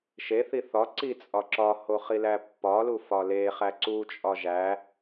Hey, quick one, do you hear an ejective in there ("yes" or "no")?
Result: yes